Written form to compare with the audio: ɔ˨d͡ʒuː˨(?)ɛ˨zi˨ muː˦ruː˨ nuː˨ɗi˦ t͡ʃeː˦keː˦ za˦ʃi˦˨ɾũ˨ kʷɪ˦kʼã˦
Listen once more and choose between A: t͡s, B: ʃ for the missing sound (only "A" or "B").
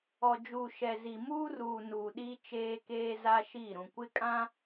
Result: B